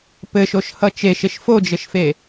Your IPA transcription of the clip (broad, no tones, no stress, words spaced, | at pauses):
pɘʃoʃhʌ t͡ʃeʃeʃ fod͡ʒɘʃfe